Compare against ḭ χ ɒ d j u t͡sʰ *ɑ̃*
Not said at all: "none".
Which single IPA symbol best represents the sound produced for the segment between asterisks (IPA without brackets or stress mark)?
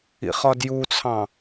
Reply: ɑ̃